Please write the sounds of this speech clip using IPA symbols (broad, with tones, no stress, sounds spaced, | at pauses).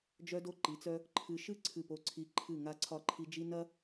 d͡ʒ œ˦ d o˦ ǃ i˨˦ t͡s œ˦ | ǃʰ ɨ˨ ʃ ɨ˦˨ ǀʰ ɨ˦˨ p o˦ ǀʰ i˦ ǃʰ ɨ˦˨ ŋ a˦ ǀʰ ɒ˦˨ ǃʰ i˦ d͡ʒ i˦ n ɐ˦